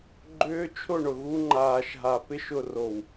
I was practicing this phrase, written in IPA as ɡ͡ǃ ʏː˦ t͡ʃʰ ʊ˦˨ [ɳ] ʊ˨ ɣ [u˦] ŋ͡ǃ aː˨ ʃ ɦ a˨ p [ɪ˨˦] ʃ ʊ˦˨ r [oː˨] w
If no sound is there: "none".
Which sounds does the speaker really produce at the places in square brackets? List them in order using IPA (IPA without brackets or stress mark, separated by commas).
ɳ, u˦, ɪ˦, o˨